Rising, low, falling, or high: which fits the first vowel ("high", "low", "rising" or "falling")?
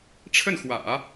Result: falling